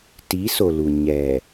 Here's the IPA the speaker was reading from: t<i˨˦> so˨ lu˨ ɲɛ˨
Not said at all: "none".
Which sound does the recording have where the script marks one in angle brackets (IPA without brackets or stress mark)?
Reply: i˨˦